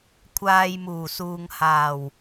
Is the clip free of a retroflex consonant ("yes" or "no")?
yes